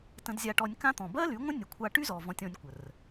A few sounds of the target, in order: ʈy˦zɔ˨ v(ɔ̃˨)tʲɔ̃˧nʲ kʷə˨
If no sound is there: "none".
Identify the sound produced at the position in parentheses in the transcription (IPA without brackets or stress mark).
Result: ɔ̃˧